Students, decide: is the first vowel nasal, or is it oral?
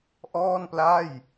oral